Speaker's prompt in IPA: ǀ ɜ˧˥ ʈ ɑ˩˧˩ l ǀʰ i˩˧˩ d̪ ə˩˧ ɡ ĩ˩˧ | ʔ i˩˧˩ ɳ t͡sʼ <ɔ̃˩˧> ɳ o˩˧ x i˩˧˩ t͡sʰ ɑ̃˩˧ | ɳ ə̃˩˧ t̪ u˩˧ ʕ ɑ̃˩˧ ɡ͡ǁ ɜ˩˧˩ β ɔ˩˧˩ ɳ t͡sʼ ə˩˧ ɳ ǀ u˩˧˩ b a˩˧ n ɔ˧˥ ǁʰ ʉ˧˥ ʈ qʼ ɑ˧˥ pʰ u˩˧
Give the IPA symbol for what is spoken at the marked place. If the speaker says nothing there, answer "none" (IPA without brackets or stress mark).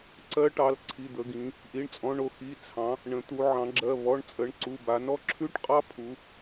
ɔ̃˩˧